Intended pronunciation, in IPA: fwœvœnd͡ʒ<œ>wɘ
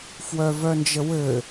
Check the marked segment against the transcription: incorrect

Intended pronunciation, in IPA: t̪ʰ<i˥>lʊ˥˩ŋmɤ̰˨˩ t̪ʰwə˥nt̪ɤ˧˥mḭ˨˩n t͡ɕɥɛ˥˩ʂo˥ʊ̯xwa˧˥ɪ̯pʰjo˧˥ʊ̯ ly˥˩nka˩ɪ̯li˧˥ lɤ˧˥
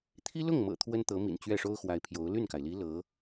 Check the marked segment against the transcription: correct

